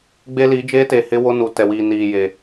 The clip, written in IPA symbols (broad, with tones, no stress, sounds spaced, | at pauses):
ɡ͡b e˦ l i˨˦ d͡ʒ eː˦ t eː˨ h ɪ˦ w o˦ n u˨ t ɛ˨ w iː˨ n iː˨ j e˨